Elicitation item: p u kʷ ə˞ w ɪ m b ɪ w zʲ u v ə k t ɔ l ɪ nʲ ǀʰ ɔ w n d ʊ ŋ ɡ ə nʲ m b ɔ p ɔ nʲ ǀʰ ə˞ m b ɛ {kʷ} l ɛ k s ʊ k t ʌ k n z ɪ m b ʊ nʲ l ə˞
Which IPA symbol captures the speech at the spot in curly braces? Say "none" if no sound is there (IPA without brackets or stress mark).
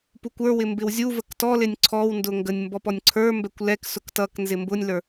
kʷ